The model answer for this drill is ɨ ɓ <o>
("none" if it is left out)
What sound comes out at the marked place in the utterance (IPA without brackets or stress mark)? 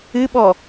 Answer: ɔ